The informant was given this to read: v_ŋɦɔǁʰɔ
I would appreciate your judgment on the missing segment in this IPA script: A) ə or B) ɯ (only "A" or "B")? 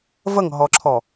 A